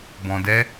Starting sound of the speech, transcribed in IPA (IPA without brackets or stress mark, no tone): b